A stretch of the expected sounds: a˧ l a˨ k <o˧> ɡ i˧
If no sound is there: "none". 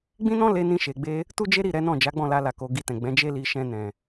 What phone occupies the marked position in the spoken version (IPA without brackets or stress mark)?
o˨